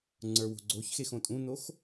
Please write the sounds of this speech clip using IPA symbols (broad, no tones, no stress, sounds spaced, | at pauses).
ŋ͡ǀ ə˞ w o̤ ɡ͡ǀ o ç x e x õ tʼ ũ n o x